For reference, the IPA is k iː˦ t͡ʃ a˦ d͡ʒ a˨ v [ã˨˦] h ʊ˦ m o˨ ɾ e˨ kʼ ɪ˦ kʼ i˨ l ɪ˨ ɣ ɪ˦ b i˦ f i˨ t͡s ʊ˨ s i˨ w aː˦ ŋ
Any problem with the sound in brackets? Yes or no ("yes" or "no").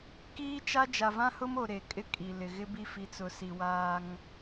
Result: yes